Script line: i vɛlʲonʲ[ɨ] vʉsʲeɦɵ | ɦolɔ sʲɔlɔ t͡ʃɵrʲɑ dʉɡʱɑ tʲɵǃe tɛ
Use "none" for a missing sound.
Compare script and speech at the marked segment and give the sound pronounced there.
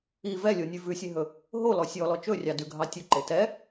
ʉ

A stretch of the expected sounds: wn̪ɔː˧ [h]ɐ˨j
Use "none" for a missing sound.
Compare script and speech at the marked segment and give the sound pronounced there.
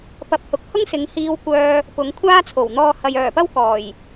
h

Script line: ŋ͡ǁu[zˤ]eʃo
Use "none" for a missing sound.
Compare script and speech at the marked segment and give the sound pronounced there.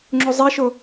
zˤ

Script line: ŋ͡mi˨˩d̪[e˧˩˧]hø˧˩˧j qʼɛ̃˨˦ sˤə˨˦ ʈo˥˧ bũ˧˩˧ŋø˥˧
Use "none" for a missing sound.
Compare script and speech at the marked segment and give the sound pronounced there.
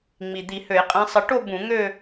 i˧˩˧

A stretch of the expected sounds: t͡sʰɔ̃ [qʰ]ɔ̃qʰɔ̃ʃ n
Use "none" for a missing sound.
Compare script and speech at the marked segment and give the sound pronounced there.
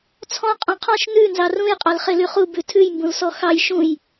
qʼ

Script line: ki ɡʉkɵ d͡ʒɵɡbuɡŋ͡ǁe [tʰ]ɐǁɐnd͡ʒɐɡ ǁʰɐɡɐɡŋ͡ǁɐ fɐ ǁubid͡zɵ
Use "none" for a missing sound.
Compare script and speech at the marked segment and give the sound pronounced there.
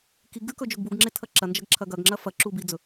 tʰ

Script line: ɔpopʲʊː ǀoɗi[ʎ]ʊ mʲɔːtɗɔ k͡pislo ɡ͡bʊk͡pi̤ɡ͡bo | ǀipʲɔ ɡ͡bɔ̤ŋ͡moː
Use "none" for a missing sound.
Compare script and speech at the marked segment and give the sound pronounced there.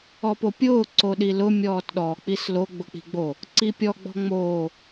l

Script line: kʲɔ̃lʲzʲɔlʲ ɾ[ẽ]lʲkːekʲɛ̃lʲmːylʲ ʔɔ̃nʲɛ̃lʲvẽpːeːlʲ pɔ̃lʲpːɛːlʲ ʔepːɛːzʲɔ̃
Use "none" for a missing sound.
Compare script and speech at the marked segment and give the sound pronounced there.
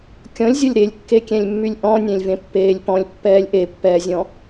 e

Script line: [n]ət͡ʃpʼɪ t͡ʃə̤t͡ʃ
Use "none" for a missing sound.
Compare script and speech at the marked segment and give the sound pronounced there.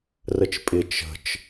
r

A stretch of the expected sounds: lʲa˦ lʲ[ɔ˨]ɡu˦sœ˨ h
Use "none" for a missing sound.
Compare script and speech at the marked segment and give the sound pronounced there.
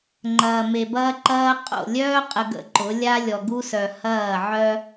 ɔ˨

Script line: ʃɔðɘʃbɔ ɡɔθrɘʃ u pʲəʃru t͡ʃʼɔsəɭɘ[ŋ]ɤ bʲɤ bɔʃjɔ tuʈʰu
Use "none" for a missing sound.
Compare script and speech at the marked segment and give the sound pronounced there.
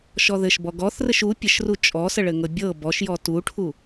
ŋ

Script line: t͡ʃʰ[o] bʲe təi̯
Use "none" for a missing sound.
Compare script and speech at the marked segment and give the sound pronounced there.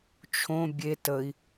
õ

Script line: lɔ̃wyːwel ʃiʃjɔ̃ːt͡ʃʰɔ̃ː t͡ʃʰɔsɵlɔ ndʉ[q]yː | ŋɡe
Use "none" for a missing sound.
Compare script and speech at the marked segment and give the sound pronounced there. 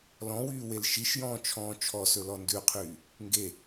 qʰ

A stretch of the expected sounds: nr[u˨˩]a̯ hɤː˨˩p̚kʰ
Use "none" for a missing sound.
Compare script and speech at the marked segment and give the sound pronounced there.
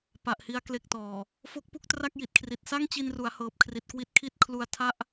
u˩˦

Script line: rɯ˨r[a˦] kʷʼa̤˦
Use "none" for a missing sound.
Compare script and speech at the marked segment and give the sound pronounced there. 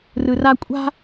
a˦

